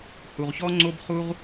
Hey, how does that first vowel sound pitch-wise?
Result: low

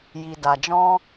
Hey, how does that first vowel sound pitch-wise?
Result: low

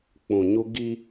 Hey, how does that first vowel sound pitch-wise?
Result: low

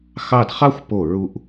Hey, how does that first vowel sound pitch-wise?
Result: falling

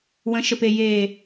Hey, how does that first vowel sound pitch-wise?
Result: rising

